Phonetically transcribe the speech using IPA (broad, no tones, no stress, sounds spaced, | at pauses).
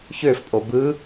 ç ø f pʼ o b ɯ